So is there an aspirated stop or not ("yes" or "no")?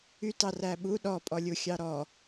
no